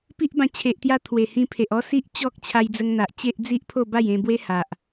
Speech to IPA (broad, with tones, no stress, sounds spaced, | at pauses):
p i˦ ʔ b ã˧ t͡ɕʰ e˨ ʔ t̪ j a˧ t̪ʰ w e˨˩ h ĩ˧ pʰ e˨ ʔ ɔ˦ s i˦ ʔ t͡ɕ ɔ˦ k̚ t͡ɕʰ a˧ j d͡z ə˧ ŋ n̪ a˨ ʔ t͡ɕ e˦ ʔ d͡z i˦ ʔ pʰ o˥˧ b a˥˧ j ẽ˧ b w e˦ h a˨ ʔ